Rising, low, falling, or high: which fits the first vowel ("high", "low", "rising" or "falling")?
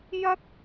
high